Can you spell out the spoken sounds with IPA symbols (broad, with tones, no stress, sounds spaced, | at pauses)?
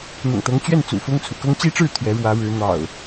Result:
n̪ ʊ̰˨˩ ŋ t̪ ɤ˨˦ ŋ t͡ɕ ɥ ɛ˥˨ n t͡s ṵ˨˩ f ʊ˦ ŋ t͡sʰ ṵ˨˩ k ɤ˦ ŋ t͡ɕ i˦ ʈ͡ʂ ɻ̩˥˨ t̪ʰ ɥ ɛ˨˦ ɻ w ä˨˦ ɻ ɻ̩˨˦ n̪ ɑ̰˨˩ ʊ̯